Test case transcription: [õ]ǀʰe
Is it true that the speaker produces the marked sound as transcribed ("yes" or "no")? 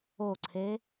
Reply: no